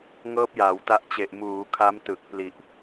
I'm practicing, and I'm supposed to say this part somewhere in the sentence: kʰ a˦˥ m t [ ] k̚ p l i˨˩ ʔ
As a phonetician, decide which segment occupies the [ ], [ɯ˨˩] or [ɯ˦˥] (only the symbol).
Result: ɯ˨˩